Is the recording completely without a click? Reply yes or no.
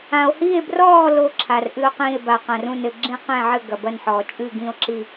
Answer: no